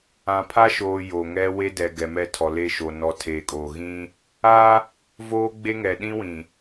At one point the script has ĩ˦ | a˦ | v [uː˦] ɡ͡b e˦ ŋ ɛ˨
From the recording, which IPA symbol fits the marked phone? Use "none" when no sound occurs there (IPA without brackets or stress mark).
oː˦